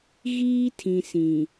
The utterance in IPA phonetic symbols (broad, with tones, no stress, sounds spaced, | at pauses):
ɣ iː˦ tʰ ĩ˨ s ĩ˨